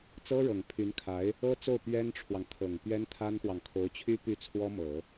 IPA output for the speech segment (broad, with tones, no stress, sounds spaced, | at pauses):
t͡s ɤ˥ ɻ ɤ˨˩ ŋ pʰ y˧˥ n kʰ a˧˥ ɪ̯ | ɤ˥ t͡s o˥˩ ʊ̯ p ɥ ɛ˥ n ʈ͡ʂʰ w ɑ˨ ŋ t̪ʰ ɤ˨˩ ŋ p ɥ ɛ˥ n t̪ʰ a˥ n x w ɑ˨ ŋ kʰ o˧˥ ʊ̯ t͡ɕʰ y˥ p y˥˩ t͡sʰ w ɔ˥ m ɤ˨˩˦